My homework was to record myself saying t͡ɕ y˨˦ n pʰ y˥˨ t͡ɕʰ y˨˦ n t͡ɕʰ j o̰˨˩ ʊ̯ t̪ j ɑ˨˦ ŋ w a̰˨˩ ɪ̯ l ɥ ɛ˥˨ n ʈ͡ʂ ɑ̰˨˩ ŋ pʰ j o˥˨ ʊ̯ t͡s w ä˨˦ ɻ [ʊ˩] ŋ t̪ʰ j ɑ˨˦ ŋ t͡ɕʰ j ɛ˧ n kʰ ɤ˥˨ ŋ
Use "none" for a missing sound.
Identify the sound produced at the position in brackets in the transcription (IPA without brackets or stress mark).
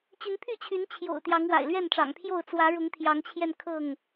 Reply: ʊ˨˦